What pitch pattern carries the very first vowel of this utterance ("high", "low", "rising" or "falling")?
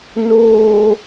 low